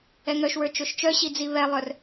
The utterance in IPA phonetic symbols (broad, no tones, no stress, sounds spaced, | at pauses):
ɛ ŋ œ ʃ w ə˞ t͡ʃ o ʃ t͡ʃ œ ɕ i d͡z i β ɛ lˠ œ r